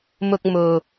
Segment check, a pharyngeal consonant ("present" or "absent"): absent